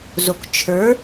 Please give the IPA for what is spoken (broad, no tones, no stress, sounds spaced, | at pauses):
z o k t͡ʃʰ ə˞